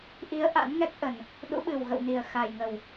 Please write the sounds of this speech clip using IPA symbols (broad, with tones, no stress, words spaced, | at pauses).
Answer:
ʔi˨˦ə̯ ʔa̰˧˥nŋɛ˦˥k̚ ʔə˨˩n | ɗṵ˧˥ɓɨ˨˩wɣə̰˧˨wni˨˩ə̯ xa˨˩jŋə˨˩w